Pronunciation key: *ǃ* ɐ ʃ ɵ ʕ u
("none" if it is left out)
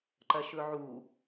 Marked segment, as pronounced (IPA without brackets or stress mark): ǃ